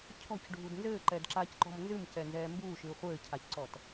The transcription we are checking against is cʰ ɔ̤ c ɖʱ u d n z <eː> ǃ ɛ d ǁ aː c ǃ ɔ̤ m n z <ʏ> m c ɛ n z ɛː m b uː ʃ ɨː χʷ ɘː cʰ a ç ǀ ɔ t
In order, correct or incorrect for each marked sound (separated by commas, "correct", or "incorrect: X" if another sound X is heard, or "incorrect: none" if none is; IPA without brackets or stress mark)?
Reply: incorrect: ɘː, incorrect: ɨ